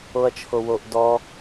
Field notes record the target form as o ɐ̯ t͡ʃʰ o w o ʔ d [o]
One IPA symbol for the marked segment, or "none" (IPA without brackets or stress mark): ɔ